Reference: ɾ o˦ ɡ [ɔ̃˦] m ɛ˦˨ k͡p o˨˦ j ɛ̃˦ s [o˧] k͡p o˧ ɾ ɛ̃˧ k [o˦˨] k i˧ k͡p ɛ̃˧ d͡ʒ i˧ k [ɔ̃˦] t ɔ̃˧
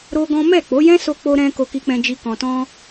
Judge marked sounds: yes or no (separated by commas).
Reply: yes, yes, no, no